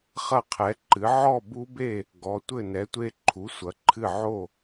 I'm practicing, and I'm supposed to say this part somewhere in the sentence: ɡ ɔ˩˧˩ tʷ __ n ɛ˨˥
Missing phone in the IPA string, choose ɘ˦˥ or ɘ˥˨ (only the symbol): ɘ˥˨